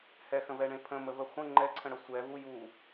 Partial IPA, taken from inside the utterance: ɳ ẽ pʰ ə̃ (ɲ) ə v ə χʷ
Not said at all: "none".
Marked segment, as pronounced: m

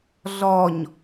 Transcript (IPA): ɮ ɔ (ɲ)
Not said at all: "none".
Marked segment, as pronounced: ɲ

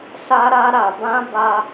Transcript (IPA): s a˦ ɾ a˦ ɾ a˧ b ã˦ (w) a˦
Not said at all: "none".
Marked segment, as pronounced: b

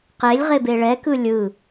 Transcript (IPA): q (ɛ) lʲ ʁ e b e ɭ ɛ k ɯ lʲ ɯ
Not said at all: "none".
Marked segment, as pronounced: e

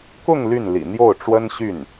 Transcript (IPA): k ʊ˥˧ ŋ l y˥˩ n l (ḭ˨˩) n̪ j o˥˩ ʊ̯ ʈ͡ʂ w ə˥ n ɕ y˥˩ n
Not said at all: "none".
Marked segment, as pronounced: ḭ˨˩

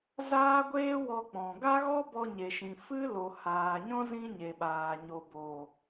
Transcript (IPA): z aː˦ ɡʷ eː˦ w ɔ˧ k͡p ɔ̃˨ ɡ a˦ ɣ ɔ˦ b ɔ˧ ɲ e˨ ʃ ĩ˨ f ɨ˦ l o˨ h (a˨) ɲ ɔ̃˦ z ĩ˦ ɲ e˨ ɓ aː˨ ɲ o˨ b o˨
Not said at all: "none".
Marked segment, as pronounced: aː˨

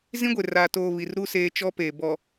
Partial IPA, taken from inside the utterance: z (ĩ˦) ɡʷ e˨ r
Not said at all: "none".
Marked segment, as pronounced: ĩ˦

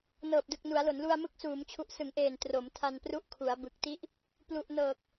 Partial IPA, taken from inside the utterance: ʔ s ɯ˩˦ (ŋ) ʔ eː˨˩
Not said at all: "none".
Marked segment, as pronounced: ŋ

